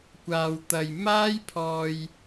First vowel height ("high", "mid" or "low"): low